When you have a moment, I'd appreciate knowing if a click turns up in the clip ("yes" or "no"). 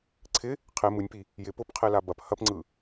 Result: yes